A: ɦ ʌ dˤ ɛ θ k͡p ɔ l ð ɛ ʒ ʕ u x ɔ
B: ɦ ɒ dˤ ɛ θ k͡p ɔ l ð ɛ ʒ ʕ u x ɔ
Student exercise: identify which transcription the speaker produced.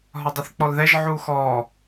B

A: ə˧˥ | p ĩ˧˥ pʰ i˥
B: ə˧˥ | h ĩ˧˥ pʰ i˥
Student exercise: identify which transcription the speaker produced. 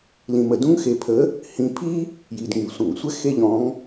B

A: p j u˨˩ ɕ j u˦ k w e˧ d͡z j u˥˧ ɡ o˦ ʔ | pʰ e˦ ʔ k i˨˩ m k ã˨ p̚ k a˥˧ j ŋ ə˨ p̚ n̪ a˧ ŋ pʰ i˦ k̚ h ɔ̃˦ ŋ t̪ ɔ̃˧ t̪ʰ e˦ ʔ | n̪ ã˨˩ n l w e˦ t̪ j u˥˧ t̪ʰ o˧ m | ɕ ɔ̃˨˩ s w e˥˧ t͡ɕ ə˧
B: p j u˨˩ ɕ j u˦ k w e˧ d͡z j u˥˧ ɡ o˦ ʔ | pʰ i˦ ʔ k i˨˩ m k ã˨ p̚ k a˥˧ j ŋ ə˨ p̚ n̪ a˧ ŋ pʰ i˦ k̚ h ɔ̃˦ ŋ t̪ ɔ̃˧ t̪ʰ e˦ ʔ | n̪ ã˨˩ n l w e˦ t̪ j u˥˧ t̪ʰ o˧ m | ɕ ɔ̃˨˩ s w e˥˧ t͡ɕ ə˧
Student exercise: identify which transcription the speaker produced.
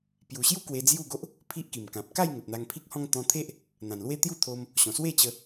B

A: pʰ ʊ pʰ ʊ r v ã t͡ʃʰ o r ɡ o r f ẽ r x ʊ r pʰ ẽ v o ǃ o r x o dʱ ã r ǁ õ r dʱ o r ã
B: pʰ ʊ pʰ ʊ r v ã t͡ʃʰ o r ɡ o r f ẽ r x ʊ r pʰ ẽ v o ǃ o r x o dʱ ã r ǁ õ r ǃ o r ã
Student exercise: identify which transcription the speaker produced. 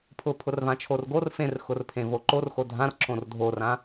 A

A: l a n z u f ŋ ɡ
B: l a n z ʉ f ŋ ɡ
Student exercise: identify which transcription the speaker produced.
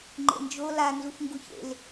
A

